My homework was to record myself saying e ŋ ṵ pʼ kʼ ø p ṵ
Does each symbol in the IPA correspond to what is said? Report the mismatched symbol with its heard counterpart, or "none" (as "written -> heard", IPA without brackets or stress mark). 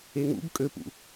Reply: pʼ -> b